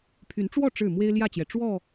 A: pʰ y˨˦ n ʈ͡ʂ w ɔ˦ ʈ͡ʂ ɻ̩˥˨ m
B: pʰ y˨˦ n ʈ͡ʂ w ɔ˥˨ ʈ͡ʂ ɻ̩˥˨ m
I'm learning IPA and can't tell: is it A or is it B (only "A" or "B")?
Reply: B